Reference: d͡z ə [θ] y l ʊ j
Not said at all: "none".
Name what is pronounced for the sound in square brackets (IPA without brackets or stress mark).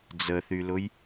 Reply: θ